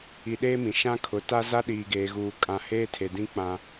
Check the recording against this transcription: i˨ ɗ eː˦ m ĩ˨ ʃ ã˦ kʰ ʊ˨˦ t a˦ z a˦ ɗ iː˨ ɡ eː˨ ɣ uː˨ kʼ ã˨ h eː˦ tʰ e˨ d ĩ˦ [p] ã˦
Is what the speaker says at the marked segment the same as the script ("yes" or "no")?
no